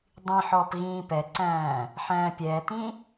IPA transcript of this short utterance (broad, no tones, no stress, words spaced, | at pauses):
dˤĩħɔːp ɣĩːpɛǀæ̃ː | ħæ̃ːpʲɛːt̪ĩ